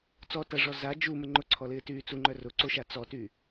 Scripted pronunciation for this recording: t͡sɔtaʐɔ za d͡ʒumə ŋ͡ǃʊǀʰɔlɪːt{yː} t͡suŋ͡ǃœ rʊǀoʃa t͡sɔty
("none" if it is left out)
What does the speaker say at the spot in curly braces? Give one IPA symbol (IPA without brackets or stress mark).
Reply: yː